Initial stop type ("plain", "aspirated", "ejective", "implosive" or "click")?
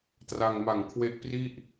plain